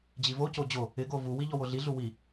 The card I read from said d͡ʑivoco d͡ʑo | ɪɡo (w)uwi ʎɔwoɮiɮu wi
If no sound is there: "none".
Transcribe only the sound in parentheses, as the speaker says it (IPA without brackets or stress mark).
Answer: v